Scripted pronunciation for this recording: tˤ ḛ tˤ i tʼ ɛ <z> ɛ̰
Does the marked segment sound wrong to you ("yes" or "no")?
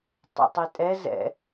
no